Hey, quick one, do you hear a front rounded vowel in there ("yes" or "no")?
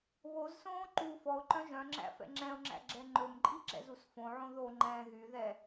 yes